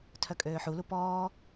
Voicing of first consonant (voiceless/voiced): voiceless